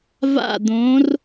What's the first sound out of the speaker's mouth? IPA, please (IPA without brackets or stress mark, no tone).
v